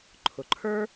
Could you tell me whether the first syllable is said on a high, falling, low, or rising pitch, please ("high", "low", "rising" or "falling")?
low